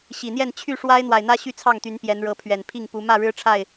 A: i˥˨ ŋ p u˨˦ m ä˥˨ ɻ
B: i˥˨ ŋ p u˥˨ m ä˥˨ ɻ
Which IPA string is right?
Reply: A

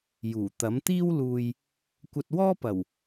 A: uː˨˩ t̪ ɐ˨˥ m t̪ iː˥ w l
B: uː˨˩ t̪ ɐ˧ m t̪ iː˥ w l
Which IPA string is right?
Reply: A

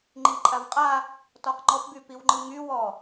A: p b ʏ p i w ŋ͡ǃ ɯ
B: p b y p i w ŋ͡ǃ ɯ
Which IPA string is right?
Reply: B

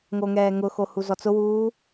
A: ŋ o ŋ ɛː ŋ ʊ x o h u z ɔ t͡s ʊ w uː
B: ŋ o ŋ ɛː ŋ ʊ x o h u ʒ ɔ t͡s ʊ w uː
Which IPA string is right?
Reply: A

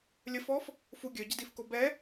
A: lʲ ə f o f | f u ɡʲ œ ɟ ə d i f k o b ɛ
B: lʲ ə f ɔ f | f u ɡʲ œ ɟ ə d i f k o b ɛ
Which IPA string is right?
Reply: B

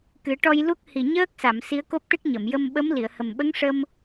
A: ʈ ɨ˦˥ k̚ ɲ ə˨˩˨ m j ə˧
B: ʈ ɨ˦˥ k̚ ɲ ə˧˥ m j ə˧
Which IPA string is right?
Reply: A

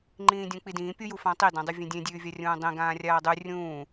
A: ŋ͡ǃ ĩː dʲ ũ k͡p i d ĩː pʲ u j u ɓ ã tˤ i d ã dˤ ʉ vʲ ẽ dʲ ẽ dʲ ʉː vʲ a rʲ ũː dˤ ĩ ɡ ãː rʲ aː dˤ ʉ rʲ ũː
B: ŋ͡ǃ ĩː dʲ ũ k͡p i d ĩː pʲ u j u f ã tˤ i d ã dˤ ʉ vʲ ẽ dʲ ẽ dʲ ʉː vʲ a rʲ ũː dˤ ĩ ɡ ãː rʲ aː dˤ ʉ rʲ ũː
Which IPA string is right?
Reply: B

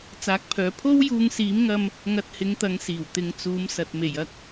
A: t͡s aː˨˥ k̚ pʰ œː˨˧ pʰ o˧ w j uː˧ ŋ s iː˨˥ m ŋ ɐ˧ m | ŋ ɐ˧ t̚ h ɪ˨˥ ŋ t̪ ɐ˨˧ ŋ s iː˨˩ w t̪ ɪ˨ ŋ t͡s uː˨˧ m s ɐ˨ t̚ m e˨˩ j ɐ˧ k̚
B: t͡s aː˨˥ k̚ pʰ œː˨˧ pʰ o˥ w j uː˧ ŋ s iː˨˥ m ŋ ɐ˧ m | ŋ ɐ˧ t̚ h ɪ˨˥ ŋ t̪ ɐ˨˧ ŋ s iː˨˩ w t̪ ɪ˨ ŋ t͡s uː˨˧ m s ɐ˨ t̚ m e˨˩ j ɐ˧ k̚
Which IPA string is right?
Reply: B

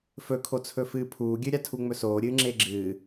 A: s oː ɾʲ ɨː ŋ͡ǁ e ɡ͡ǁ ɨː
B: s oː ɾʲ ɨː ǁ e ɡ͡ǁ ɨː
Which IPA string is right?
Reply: A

